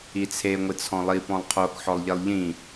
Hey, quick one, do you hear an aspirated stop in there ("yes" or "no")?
yes